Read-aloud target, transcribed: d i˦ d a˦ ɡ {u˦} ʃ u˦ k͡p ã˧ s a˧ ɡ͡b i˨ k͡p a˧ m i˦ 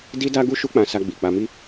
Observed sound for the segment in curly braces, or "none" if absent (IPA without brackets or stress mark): u˦